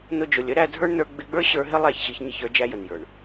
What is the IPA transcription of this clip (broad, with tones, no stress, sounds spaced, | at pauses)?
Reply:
n ʊ˧ d͡ʒ ʊ˨ lʲ ə˨˦ ɾ æ˧ dʱ ə˞˦ ɳ n ə˞˧ ɡ͡b ɪ˧ ɡ͡b ə˞˦ ɕ ə˞˧ ɦ ɪ˦ lˠ æ˦˨ ç ɕ i˧ ç ɲ ɪ˦˨ ç ə˞˧ d͡ʒ æ˦ j ə˨ n j ə˞˨ ɳ